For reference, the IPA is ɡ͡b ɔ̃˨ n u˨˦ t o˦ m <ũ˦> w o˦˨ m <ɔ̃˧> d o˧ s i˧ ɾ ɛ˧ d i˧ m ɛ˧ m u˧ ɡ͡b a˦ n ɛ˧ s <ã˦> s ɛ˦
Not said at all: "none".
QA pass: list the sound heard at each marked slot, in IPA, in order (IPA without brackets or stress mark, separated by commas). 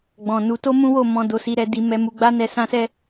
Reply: ũ˦, ɔ̃˧, ã˦